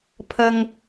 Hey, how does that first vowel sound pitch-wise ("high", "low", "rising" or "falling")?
low